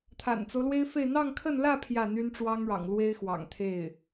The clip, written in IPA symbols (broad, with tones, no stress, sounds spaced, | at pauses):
t̪ʰ a̰˨˩ n t͡s o˦ ʊ̯ l w e˥ ɪ̯ f e˥˧ ɪ̯ n̪ ɑ˥˧ ŋ kʰ ə˥˧ n l ä˥˧ pʰ j ä˥˩ n̪ y˥ n ʈ͡ʂ w ɑ˥ ŋ ɻ ɑ̰˨˩ ŋ l w e˥ ɪ̯ x w ɑ̰˨˩ ŋ t̪ʰ e˥˩ ɪ̯